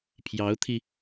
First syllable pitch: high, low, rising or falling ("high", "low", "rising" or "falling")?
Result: rising